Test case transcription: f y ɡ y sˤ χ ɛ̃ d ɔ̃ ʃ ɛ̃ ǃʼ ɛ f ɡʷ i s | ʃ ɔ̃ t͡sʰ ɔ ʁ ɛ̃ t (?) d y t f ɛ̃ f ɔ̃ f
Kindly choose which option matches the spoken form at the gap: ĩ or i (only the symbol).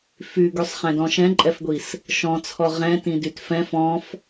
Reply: ĩ